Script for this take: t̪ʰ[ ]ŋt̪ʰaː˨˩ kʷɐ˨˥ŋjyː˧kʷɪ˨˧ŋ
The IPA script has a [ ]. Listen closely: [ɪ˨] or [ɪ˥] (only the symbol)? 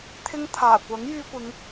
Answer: ɪ˥